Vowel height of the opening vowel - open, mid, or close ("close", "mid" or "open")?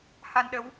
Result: open